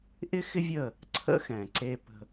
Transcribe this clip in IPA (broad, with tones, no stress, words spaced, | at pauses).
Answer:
ʔɪ˦xɪ˦ vʲə˦˨ | ǀʰə̰˦xɛ̃˨ǀe˧pə̤˧